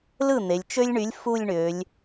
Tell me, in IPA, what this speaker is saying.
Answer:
lɯ˥˩ n̪e˩˧lʲt͡ʃø˥lʲɳy˨˥lʲ fu˥˧lʲɳø˩˧lʲ

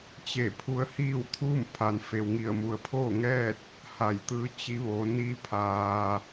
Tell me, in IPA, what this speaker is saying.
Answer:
t͡ɕe˧˩ pʰu˧˥ə̯hiː˥˨wt̪ʰuː˥˨m pʰa˩nfe˩wŋi˧˩ə̯mu˩ə̯ pʰoː˥˨ ŋɛː˥˨t̚ | ha˧˩jt̪ɯː˧˥ t͡ɕi˧˥ʋoː˩˧ niː˧ pʰaː˩

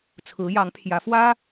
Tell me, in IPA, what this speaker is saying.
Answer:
t͡sʰɹ̩˧˥jɑ˧˥ŋpʰjä˧˥ fwä˥

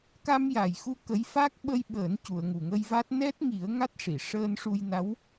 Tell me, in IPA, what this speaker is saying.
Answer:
ka˧mja˨˩jxu˧ kə˧˥j fa˦˥k̚ɓə˧jɓəː˨˩˦n cu˨˩˨ə̯ŋu˨˩ŋə˧jva˦˥t̚ nɛ˦˥t̚ŋi˨˩˦ə̯ ŋa˦˥t̚ʂi˨˩˨ ʂəː˧nʂu˧jna˧˥w

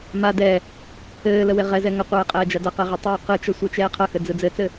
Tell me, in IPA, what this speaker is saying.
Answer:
ma dɛ | ɘːlə weʁɛzɛ ŋəqʷɛː qʼɛːd͡ʒadʌqɛ ʁitˤoːqɯt͡ʃʌ sʷɛt͡ʃɛːqʰʌxɘ d͡zɯd͡zɘt͡sɘ

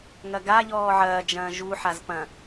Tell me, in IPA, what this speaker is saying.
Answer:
ŋɐɡa ʎɔːʕɐː d͡ʒɐ̃ːʒu ħazpɐ̃

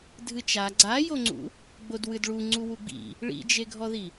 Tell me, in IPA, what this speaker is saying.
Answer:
dʱɨt͡ʃa ɡ͡ǀajoŋ͡ǀṵ | ɡ͡bodwɨdɭu ŋ͡ǀuwuɡ͡bḭ | ɭḭd͡ʒeɡʱɔði

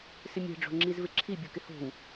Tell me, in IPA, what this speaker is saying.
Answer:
sɪmʲɛ̤ ɖ͡ʐo̤ŋ͡ǁizvɪǁʰi bʲukɪho̤w

